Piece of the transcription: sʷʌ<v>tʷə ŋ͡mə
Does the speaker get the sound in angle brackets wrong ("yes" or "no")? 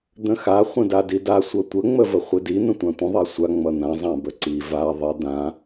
yes